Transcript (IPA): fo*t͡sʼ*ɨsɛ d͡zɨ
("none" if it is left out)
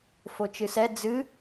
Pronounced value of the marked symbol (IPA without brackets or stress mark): t͡ʃ